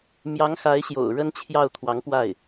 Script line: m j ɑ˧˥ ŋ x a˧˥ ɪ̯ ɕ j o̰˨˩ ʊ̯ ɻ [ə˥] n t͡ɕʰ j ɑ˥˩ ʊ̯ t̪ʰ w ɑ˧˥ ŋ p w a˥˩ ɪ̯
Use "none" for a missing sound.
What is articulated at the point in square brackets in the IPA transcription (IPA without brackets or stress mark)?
ə˥